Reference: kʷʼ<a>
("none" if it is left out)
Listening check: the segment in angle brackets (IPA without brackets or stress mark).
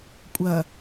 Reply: ɐ